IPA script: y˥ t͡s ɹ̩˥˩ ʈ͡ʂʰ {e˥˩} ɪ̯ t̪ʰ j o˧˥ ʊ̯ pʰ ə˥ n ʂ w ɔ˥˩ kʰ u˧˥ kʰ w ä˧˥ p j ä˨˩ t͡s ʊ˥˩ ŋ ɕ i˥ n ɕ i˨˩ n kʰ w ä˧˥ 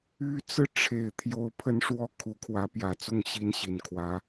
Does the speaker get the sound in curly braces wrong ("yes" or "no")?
yes